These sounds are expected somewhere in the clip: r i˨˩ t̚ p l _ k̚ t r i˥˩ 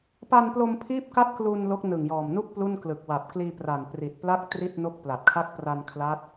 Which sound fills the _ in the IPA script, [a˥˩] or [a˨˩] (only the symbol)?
a˥˩